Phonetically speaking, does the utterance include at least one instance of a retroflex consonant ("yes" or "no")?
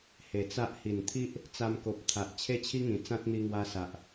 no